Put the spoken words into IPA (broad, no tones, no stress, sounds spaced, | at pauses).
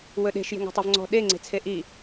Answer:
w ɵ ɗ e̤ ʃ j e̤ ŋ ɔ̤ tˤ œ v ŋ͡ǀ ɔ̤ ɗ e ŋ͡ǀ e̤ t͡sʰ e ʔ i